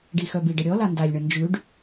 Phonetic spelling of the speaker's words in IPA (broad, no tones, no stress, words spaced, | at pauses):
ɖixœbiɖə ɾʲɔ landalʲɳə nd͡ʒʉɖ